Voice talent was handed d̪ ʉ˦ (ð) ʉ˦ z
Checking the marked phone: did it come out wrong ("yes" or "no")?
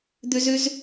yes